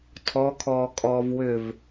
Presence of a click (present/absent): absent